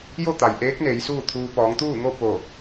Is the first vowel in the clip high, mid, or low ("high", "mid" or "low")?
mid